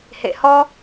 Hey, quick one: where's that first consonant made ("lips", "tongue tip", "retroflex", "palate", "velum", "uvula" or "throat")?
throat